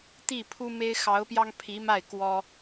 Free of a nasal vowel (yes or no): yes